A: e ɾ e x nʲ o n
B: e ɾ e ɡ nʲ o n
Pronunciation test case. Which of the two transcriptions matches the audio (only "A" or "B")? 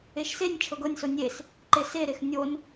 A